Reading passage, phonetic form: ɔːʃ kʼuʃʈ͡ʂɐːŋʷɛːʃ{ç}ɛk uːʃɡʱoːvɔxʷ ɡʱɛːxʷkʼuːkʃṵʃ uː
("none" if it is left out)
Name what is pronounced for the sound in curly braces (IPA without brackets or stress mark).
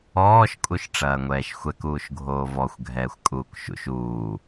xʷ